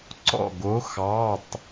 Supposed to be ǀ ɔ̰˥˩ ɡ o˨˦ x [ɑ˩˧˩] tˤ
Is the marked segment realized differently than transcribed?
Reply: no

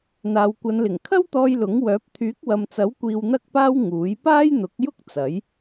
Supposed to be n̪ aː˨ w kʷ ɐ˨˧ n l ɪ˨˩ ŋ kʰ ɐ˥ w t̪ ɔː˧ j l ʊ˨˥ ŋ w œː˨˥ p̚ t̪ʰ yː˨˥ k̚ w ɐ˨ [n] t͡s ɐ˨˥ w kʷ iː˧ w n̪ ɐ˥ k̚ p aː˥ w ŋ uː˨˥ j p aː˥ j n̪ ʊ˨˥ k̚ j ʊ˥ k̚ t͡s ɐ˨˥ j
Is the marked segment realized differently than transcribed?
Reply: yes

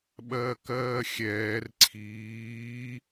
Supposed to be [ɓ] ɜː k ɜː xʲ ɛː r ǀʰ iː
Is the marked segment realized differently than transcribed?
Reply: no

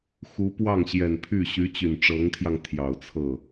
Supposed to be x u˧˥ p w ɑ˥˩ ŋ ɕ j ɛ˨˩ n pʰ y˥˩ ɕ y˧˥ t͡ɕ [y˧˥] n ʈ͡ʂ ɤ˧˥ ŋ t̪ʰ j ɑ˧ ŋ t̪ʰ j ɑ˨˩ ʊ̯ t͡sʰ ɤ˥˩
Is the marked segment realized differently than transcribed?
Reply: yes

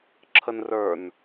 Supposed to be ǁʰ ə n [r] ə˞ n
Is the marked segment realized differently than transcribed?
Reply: no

